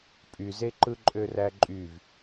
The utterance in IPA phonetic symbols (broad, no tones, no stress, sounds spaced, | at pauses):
pʼ y z e ǃ ɯ ǃʼ ø r æ ǃʼ y v